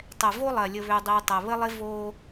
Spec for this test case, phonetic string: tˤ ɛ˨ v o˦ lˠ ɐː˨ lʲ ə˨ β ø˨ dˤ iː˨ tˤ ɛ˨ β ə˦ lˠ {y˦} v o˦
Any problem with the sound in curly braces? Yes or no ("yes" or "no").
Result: yes